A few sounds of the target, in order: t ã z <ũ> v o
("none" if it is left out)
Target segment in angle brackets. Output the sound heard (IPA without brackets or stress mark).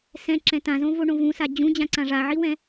õ